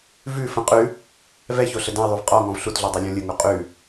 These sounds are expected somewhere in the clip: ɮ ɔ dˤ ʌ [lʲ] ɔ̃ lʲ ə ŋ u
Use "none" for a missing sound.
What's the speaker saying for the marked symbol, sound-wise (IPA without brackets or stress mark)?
lʲ